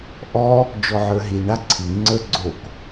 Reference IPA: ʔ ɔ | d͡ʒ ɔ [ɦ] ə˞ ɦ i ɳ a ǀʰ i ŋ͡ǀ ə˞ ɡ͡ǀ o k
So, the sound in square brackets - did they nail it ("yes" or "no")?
no